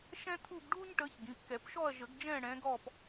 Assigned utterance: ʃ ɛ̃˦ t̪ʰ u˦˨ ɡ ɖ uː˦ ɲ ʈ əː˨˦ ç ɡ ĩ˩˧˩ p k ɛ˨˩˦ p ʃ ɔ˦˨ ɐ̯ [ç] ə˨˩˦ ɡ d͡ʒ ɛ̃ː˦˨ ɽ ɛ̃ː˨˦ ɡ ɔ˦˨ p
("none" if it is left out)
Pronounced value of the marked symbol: ʒ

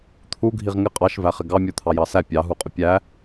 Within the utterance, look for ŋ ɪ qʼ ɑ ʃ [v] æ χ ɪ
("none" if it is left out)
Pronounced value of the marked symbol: v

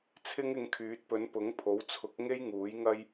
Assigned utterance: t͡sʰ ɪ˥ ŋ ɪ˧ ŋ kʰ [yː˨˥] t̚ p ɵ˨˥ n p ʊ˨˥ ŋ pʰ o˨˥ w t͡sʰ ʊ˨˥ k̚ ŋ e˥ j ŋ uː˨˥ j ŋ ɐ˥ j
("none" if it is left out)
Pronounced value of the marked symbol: yː˨˥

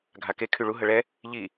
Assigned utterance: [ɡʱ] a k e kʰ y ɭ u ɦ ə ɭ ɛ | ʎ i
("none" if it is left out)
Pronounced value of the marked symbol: ɡʱ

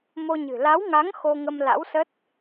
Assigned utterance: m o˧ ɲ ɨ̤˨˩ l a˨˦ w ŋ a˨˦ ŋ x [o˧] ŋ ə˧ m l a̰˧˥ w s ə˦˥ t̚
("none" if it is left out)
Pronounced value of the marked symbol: o˧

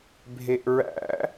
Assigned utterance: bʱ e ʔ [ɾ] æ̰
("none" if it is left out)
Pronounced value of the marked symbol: ɹ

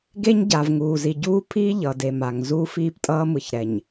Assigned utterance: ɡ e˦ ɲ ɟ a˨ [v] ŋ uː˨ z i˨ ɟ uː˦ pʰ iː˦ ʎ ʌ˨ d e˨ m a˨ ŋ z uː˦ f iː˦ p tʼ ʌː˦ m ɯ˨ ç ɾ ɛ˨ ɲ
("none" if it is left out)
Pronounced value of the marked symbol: v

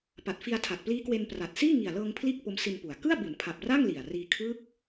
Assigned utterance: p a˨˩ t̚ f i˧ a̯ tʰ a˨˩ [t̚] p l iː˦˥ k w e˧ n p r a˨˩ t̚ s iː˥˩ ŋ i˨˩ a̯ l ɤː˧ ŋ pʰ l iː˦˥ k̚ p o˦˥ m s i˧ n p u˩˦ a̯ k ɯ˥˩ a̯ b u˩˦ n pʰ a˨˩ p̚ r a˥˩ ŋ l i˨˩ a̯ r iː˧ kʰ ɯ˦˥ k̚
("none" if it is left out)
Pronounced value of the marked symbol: t̚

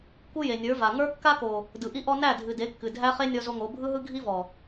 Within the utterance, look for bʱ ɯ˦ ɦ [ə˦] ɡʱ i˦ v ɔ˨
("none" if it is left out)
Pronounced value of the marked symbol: ɯ˦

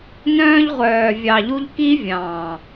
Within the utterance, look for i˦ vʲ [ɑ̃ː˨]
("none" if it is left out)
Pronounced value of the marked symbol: ɑ̃ː˨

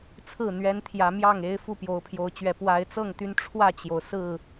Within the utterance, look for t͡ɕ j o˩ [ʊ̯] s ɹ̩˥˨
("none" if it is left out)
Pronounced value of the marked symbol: ʊ̯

